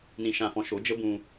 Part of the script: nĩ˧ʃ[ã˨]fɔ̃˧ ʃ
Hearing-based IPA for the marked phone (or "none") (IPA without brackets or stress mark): ã˧